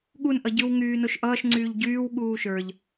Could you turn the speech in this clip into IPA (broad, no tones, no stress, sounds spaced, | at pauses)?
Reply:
ɠ u n ʔ ʌ ɟ ɯ w ŋ yː n o ʃ ʔ ʌː ʃ ŋ͡ǀ yː ʎ ɟ yː w ɠ uː ʃ ə˞ ʎ